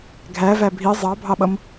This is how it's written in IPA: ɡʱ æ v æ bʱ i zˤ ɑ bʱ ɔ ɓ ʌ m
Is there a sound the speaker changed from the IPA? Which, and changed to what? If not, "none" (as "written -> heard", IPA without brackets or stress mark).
ɔ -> ɑ